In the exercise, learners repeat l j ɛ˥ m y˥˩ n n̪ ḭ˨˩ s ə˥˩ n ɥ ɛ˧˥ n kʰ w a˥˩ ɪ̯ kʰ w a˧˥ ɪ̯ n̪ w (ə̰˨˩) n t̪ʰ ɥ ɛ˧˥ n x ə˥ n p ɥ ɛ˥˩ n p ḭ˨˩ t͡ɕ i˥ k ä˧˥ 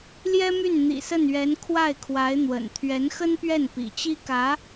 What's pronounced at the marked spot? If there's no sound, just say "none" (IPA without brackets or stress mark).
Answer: ə̰˨˩